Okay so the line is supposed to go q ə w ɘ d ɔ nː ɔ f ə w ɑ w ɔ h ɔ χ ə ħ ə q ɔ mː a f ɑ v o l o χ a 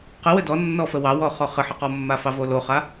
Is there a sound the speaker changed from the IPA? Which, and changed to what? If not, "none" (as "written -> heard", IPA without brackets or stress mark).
h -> χ